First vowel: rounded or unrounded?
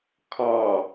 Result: rounded